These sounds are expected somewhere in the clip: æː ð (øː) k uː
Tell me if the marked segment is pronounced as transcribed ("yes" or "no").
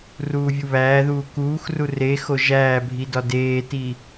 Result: no